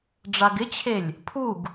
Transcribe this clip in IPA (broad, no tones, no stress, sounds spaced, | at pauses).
ɖ͡ʐ a ɡ ɪ t͡ɕʰ e lʲ | pʰ u ɡ